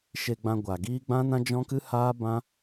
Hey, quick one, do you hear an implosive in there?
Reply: no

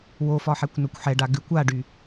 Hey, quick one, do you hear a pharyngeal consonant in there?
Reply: yes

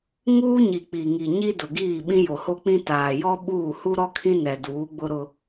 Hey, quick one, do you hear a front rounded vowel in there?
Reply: no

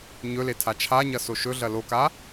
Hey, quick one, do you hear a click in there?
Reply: no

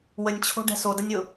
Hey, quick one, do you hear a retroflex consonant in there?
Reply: yes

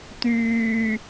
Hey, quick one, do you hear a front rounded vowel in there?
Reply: yes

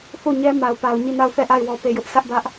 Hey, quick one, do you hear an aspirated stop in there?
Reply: no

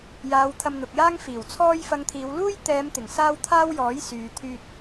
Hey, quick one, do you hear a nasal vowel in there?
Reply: no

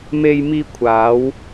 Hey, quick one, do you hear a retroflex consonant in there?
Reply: no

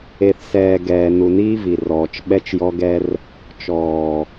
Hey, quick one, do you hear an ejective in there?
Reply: no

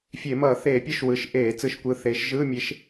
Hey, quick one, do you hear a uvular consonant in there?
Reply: no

